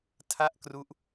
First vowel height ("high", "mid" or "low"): low